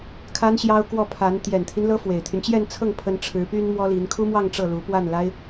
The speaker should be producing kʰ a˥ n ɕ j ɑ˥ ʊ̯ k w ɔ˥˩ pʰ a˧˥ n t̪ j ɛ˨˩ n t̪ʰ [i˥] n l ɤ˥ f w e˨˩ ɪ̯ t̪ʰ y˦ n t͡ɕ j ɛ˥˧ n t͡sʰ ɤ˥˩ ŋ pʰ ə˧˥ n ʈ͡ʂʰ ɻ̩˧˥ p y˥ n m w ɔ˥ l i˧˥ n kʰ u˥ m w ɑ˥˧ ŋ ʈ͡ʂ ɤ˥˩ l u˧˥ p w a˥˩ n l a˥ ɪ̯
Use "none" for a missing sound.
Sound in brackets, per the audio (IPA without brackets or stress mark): i˦